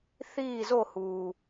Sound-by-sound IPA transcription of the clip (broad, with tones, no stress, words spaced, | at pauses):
θiː˦˨zo˦˨huː˨